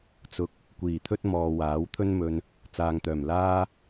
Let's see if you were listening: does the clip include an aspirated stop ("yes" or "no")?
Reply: yes